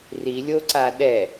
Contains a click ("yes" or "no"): yes